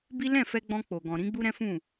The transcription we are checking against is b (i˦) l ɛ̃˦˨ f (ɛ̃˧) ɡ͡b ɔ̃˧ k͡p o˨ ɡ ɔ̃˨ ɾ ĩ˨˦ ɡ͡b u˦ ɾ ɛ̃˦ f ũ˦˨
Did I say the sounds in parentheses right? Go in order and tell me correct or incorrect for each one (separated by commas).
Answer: correct, incorrect